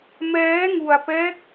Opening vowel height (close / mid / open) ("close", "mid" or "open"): mid